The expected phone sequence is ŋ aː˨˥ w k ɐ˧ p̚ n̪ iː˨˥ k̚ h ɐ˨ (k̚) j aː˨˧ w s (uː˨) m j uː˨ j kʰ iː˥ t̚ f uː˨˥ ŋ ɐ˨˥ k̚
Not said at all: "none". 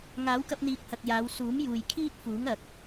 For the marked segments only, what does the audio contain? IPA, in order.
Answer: k̚, uː˨˥

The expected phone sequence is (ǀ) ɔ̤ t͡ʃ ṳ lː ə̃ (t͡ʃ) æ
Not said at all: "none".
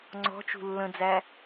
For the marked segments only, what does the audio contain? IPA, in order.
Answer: ŋ͡ǀ, d͡z

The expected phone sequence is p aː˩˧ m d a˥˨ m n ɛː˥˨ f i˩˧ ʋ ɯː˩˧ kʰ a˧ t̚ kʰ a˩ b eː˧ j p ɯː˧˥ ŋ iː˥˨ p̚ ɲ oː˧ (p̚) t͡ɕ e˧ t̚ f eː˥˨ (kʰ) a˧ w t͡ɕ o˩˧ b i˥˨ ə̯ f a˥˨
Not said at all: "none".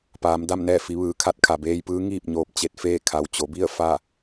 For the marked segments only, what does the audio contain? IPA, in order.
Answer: p̚, kʰ

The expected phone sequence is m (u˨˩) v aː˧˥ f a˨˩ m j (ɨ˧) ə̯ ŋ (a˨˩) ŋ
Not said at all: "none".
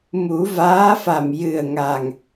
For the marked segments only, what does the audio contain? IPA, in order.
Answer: u˨˩˦, ɨ˨˩, a˨˩

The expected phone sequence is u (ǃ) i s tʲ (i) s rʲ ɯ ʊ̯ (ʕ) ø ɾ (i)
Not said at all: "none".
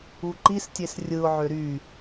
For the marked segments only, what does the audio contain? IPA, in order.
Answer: ǃ, e, ʕ, y

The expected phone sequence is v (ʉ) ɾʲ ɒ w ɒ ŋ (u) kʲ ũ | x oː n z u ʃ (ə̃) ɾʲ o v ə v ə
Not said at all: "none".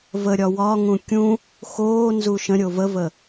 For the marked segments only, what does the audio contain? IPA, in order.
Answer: ə, ũ, ə̃

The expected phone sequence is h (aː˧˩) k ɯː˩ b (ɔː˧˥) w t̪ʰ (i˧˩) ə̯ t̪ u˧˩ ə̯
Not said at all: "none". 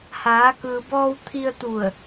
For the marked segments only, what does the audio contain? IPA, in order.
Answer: aː˩˧, ɔː˧, i˧

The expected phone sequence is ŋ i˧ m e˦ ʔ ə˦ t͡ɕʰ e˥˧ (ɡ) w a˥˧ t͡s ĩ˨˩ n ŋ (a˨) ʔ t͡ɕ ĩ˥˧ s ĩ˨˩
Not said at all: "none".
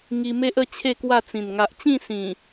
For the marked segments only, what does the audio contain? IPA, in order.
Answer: k, a˨

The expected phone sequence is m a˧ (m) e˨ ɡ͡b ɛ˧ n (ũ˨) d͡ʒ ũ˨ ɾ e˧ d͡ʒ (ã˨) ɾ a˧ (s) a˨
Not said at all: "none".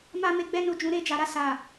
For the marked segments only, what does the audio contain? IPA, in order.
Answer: m, u˨, a˨, s

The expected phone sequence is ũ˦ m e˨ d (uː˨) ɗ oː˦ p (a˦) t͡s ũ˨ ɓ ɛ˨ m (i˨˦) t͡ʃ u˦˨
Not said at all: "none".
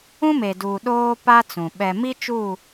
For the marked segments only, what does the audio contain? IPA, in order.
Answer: uː˨, a˦, i˦

